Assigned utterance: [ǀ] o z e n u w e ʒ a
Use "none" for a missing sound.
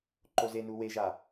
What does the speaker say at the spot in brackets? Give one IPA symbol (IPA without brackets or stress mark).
ǃ